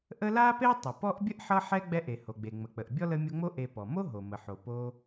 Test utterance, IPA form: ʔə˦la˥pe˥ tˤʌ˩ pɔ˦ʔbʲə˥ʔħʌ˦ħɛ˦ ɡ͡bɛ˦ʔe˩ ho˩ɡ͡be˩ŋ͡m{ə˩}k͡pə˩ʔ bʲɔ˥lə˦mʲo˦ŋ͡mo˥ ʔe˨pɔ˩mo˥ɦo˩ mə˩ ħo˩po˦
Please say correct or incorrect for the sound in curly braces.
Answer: correct